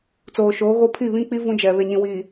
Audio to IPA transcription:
t͡s oː˨ ʃ oː˨˦ ɣ o˦ pʰ i˦˨ β ĩ˦ k͡p i˦ v ũ˦ d͡ʒ ɛ˨ β e˨ ɲ ĩ˨ w iː˨

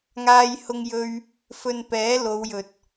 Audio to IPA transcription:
ŋ aː˥ j h ʊ˥ ŋ j ɵ˥ ɥ | f ɵ˧ n p ɛː˨˥ l o˨˧ w j ɵ˨ t̚

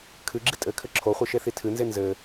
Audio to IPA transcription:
kʰ ɨ ɡ͡ǁ i tʼ ɘ kʰ ɘ ǁʰ o χʷ ɨ ʃ e θ i tʰ ɨ n z e n z ɘ

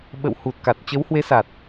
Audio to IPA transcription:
ɓ ə̰˧˨ w h u˨˩ t̚ k a˨˩ t̚ t͡ɕ ə˨˦ w h w e˨˦ s a˨˩ t̚

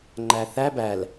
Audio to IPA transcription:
ŋ͡ǃ æ θ æ b æ l

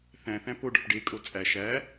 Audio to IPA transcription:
θ æ̃ θ æ̃ p o ɖ ɒ p ɖ e kʼ o t͡sʼ æ ʃ æ

